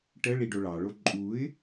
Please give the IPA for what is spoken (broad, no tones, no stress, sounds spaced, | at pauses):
ʈ ə ɭ i ɖ o ɭ ɑ ɭ o ǃʼ u ɪ̯